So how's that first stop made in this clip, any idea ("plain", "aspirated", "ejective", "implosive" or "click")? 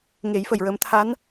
aspirated